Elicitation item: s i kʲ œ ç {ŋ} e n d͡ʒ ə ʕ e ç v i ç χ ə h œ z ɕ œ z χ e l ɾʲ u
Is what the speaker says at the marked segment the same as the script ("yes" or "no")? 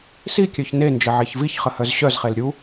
no